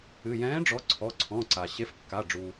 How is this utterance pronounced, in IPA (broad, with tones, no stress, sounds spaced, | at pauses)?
ɨ˩˧˩ j ɛ̃ː˨˥ ɖ͡ʐ ɔ˨˥ ǀʰ ɔ˩˧˩ ǀʰ ɔ̃˩˧˩ ǀ a˩ ɕ e˨˥ f kː a˩˧˩ ɖ͡ʐ u˩